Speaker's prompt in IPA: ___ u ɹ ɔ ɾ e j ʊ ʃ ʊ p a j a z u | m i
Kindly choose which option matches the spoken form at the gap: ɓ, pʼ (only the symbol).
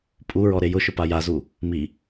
pʼ